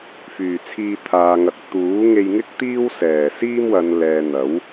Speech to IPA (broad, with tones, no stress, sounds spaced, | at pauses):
f yː˨˩ t͡sʰ iː˧ t̪ʰ aː˨ ŋ ɐ˨ k̚ t̪ uː˨˥ ŋ e˧ j ŋ ɪ˥ k̚ t̪ iː˥ w s ɛː˨˩ s iː˥ m w ɐ˨˧ n l ɛː˨ n̪ ɐ˨˥ w